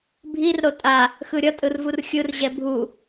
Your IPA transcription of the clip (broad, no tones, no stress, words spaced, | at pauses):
bʱir ɾotʼa | xɯɾʲʌ tʼɯrvurxʲɯr ʑɛbʱu